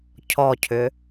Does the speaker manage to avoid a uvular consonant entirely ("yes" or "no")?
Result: yes